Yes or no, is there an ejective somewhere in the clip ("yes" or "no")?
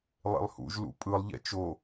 yes